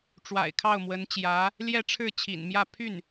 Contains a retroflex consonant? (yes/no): yes